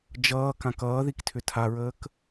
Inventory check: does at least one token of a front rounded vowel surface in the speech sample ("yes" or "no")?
yes